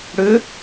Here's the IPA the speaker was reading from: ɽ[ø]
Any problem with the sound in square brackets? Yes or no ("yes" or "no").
no